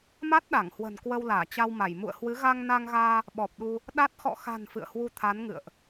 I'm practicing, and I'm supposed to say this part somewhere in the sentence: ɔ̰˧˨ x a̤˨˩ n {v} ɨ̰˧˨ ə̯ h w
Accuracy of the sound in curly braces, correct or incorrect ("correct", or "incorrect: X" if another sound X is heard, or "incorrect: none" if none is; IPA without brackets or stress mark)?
incorrect: f